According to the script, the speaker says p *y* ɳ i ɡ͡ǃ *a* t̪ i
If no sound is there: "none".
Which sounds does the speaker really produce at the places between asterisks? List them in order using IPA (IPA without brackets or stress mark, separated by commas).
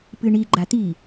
ɨ, a